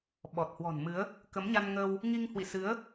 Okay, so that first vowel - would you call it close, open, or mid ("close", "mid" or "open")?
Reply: mid